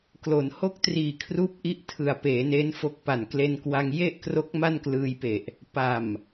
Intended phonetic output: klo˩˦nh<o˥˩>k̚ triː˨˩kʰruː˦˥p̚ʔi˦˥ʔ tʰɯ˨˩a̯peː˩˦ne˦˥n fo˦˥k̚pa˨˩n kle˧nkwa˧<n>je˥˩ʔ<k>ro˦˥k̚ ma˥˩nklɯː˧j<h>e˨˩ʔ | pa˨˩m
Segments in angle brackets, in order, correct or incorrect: correct, incorrect, correct, incorrect

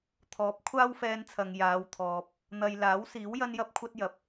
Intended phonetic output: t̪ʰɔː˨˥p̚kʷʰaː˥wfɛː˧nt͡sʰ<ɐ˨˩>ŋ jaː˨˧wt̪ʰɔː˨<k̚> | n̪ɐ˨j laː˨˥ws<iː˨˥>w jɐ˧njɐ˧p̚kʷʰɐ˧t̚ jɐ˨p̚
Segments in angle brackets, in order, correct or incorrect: incorrect, incorrect, correct

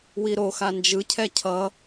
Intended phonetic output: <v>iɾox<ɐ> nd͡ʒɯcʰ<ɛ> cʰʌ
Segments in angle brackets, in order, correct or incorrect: incorrect, incorrect, correct

